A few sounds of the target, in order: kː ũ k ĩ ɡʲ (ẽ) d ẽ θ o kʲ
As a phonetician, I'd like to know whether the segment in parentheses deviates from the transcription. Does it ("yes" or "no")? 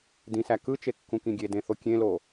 yes